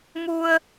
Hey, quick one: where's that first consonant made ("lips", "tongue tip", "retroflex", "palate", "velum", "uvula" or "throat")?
lips